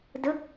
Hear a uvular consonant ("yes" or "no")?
no